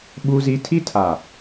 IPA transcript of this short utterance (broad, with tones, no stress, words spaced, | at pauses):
ɓu˦zi˦ tʰi˦tʰa˨